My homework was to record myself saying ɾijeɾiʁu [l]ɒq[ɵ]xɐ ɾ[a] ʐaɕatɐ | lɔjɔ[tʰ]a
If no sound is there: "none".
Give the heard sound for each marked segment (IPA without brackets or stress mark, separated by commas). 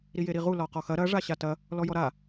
l, ɔ, ɐ, ɾ